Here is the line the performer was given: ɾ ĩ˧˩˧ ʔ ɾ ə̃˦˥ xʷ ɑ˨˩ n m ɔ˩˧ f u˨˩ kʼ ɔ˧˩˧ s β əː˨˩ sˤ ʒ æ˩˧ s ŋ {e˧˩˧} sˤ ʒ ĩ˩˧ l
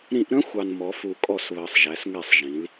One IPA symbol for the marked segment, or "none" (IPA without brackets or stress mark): ɛ˧˩˧